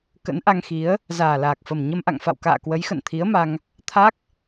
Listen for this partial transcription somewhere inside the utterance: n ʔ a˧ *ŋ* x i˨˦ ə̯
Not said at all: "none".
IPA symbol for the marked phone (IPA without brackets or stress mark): ŋ